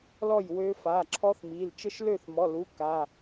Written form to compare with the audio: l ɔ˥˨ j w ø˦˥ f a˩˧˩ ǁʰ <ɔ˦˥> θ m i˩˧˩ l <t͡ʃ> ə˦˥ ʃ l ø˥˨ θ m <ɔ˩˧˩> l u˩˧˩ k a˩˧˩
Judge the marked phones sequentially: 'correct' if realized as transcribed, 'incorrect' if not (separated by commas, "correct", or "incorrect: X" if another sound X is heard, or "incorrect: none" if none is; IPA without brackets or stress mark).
correct, correct, correct